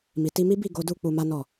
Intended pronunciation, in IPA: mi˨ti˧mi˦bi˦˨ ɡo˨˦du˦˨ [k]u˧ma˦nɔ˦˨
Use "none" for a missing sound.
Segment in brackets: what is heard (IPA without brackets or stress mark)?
k͡p